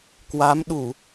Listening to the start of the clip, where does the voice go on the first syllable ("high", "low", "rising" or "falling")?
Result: rising